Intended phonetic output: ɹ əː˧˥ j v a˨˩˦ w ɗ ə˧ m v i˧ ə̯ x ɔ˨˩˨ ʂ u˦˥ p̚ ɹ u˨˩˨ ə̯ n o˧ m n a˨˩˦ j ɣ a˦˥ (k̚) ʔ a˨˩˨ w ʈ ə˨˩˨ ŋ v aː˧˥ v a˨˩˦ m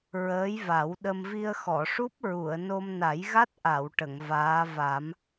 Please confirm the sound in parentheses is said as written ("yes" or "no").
no